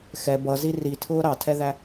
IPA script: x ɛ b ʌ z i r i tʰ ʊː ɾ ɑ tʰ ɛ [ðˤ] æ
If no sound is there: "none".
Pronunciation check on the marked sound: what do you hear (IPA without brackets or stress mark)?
ð